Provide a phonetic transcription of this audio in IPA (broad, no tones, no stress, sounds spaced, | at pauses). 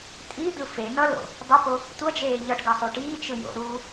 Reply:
tʼ i d̪ ɯ f e n ʌ l o̰ | dˤ ʌ p o | tʷ ʌ d͡ʒ eː ʎ ʌ ʈ ɡ ʌ sˤ u ʈ iː t͡ʃ ɯ j o̰ ɾ uː